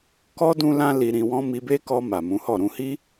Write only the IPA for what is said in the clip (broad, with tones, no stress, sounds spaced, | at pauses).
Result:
k ɔ˦ d ũ˦ l ã˦ l i˧ ɾ ĩ˧ w ɔ̃˦ m i˧ b e˦ k ɔ˧ m a˨ m ũ˨˦ h ɔ˦˨ ɾ ũ˨ h i˧